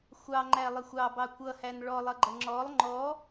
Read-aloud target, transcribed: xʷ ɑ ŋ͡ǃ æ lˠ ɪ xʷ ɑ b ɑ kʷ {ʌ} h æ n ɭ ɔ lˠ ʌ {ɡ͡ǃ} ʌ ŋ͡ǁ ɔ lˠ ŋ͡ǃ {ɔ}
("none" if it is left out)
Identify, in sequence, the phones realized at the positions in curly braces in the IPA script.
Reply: ʌ, ɡ͡ǃ, ɔ

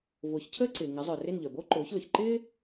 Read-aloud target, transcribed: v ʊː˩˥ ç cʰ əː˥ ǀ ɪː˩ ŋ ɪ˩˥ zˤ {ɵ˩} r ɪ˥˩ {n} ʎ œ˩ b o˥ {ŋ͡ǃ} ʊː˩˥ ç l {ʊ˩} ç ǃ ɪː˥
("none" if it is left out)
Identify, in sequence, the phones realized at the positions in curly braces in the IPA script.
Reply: œ˩, n, ǃ, ʊ˩

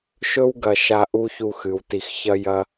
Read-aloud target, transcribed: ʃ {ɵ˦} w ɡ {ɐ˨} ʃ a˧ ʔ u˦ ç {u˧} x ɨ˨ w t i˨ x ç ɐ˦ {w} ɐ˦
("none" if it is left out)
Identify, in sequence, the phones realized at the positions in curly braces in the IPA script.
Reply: ɵ˦, ɐ˨, u˧, j

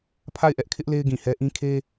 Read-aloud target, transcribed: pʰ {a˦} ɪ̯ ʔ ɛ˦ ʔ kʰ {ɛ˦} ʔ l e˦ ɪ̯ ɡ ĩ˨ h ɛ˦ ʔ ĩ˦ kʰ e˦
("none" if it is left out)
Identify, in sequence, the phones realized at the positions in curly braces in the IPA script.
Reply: a˦˨, ɪ˦

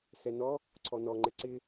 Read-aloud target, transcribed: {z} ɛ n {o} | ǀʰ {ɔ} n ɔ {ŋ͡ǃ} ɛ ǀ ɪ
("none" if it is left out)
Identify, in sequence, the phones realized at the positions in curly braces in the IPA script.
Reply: s, ɔ, ɔ, ŋ͡ǃ

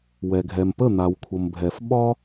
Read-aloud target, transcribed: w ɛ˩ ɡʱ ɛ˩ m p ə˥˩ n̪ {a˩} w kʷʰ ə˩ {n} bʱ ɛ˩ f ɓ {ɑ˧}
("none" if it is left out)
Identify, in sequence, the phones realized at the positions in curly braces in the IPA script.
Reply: a˩, m, ɒ˧

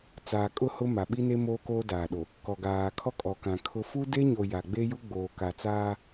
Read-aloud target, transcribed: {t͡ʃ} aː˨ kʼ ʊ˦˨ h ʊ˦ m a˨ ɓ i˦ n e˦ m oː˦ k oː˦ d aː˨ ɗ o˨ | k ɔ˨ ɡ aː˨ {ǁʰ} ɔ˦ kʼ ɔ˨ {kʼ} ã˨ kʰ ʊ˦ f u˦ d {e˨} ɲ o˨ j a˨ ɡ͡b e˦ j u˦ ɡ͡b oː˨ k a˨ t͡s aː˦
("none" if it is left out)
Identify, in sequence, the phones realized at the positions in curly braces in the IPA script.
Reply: t͡s, kʰ, k, e˦

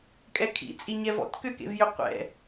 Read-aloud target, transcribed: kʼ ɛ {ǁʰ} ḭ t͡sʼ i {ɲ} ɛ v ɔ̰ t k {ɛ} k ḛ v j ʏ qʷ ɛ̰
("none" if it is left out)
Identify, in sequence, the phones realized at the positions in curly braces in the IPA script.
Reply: kʰ, ɲ, ʏ

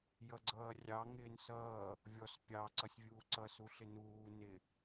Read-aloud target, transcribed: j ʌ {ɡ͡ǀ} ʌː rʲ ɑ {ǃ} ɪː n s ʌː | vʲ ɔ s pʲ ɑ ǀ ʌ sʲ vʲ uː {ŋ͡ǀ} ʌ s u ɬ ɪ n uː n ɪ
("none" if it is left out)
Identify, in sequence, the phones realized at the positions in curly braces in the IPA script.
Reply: ɡ͡ǀ, ŋ, ǀ

